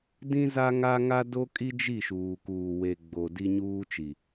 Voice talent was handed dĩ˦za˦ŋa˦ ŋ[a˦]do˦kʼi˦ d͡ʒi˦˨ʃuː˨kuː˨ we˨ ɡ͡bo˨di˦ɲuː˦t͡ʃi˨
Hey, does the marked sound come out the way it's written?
yes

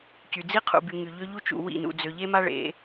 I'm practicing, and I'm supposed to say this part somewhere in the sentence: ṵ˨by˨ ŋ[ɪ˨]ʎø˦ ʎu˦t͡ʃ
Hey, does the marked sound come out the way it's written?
no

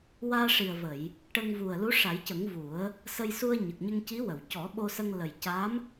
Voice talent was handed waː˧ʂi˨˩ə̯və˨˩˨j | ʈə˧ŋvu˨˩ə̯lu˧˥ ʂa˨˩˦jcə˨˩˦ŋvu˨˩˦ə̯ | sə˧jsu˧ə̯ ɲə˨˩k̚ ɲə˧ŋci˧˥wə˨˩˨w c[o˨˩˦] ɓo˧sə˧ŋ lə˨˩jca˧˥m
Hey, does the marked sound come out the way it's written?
no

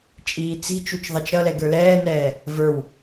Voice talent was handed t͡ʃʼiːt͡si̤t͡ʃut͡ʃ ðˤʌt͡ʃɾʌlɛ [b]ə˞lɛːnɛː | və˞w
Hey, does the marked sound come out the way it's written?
no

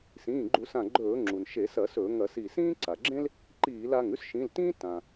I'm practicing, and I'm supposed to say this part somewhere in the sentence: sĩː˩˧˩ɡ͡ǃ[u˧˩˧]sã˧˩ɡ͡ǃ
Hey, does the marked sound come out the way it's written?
yes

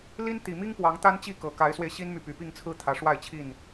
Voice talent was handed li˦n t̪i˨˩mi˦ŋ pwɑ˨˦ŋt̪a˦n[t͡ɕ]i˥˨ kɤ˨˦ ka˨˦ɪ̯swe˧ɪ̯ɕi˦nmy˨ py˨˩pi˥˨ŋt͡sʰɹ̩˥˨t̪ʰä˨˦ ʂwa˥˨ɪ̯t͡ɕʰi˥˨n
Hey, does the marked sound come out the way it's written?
yes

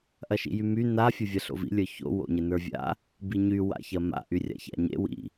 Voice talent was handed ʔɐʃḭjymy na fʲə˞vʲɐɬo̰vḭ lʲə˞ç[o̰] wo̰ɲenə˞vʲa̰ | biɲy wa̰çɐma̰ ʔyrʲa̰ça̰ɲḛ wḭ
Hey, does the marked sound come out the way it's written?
yes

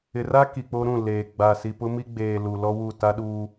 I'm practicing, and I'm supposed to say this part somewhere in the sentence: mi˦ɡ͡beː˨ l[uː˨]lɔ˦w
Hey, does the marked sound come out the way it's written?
no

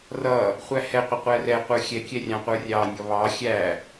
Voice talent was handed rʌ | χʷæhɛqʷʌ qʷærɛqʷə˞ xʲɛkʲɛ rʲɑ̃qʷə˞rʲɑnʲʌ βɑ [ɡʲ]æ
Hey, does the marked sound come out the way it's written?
no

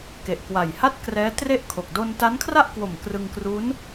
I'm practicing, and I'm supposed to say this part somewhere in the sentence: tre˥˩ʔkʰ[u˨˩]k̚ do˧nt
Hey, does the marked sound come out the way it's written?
no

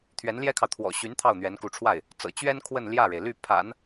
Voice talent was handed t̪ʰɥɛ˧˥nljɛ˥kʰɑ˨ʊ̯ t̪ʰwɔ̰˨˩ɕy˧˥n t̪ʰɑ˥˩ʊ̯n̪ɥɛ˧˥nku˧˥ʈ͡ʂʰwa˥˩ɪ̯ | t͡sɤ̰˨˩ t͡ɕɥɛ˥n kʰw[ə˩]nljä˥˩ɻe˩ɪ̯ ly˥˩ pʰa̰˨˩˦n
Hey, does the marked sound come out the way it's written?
no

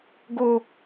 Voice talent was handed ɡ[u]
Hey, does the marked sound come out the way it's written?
no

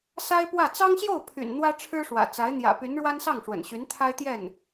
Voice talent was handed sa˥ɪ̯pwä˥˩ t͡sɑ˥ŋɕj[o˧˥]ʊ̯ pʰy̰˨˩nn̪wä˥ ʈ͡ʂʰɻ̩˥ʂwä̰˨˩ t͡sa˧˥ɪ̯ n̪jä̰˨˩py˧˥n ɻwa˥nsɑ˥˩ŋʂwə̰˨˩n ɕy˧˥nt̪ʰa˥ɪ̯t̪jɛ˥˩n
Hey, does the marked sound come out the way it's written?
no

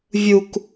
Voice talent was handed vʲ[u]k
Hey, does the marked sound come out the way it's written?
yes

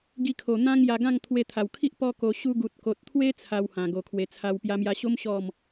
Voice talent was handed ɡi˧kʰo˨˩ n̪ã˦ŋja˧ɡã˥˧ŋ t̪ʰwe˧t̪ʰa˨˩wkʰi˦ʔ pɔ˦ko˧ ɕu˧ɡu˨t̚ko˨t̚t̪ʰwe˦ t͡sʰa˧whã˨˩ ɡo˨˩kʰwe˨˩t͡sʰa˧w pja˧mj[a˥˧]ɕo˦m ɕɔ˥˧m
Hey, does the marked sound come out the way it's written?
no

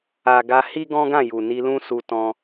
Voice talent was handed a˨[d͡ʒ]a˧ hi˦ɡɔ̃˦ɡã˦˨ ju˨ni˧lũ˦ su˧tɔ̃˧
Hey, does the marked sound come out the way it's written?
no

